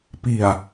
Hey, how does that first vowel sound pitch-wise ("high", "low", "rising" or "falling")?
low